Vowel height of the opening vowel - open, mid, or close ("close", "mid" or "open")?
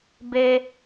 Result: mid